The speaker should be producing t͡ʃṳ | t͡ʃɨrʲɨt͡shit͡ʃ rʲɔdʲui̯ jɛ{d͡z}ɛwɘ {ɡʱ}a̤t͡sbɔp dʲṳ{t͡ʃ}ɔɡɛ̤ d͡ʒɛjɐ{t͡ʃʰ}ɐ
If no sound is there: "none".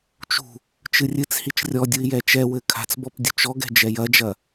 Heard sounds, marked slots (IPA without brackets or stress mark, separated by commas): t͡ʃ, kʰ, t͡ʃ, d͡ʒ